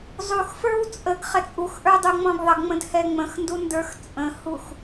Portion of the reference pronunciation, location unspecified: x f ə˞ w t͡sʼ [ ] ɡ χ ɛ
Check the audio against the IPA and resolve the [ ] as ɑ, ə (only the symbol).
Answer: ə